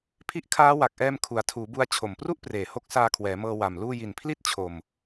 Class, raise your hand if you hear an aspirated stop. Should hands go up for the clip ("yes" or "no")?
yes